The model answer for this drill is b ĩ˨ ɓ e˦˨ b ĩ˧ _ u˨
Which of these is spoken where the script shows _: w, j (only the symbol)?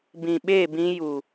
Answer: j